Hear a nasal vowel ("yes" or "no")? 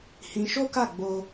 yes